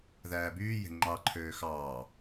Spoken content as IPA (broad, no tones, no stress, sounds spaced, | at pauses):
ð æː b yː j e̤ ŋ͡ǃ ɑ ǃʰ øː x ɑː